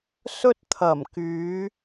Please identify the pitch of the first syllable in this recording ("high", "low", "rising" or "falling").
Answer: high